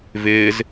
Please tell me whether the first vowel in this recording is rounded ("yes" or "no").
no